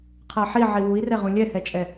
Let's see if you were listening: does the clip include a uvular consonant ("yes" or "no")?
yes